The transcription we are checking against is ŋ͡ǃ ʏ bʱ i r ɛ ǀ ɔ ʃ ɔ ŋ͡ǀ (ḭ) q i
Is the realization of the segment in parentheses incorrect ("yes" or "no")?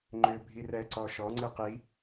yes